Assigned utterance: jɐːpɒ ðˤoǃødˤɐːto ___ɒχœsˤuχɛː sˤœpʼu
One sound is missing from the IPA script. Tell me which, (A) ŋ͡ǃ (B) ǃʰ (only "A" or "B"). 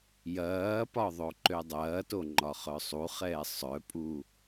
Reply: A